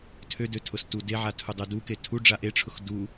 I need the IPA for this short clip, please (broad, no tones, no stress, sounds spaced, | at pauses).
tʰ ø d ø tʰ ʊ s t u d e ʕ a tʰ u dˤ ø d u k e tʰ u ɖ͡ʐ a ʔ e ʈ͡ʂʰ ʊ x d u